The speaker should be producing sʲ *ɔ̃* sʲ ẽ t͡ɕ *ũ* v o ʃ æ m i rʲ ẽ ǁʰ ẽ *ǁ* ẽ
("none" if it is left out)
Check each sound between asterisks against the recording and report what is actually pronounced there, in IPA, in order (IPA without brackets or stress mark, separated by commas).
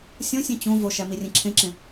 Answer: õ, ũ, ǁ